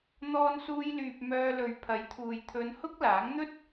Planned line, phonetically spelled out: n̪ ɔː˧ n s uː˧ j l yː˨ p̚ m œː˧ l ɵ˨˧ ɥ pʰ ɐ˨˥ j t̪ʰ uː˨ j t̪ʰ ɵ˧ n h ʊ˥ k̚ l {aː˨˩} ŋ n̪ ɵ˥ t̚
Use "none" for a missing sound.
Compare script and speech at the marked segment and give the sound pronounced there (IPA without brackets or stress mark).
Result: aː˨˥